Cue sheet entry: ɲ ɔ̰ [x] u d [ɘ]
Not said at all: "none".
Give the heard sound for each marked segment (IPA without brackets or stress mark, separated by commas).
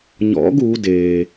ɡ, e